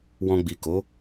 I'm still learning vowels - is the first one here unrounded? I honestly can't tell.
no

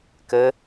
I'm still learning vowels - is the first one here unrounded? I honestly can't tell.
yes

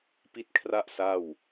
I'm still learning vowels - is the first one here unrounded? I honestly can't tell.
yes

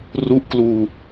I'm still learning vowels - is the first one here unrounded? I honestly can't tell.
no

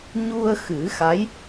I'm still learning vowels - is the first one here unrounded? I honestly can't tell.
no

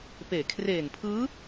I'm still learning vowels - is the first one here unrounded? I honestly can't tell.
yes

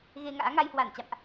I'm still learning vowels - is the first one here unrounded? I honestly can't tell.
yes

